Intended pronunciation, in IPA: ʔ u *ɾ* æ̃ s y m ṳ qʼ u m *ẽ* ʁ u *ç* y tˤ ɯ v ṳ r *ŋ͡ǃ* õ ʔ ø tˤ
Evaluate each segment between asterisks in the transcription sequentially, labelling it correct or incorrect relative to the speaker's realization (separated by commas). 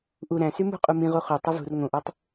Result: correct, incorrect, incorrect, incorrect